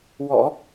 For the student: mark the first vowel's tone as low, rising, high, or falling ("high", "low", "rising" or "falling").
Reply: low